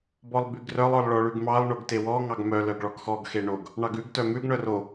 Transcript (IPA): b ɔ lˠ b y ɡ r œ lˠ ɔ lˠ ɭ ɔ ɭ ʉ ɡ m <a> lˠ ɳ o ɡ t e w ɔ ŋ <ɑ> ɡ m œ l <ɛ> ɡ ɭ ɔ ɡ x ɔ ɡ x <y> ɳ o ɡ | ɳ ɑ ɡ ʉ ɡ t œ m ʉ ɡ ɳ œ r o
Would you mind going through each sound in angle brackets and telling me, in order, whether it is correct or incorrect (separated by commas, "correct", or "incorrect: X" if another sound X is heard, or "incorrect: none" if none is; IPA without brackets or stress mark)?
incorrect: ɑ, correct, incorrect: œ, incorrect: e